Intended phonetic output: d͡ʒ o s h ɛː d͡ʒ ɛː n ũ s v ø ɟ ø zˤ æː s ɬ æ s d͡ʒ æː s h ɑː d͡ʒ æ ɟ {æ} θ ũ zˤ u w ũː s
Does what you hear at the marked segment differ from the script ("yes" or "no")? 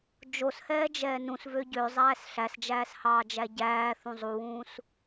yes